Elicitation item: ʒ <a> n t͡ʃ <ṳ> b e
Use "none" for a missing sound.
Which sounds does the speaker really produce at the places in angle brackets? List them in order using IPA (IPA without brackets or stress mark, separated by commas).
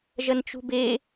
ɐ, ṳ